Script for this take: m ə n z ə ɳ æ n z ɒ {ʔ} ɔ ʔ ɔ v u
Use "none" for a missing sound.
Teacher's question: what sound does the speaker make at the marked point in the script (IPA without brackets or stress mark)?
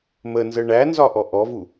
ʔ